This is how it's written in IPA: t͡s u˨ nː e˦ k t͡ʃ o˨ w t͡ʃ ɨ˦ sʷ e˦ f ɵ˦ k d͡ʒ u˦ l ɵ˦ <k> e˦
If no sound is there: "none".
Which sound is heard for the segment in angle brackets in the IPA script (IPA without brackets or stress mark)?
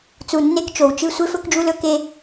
k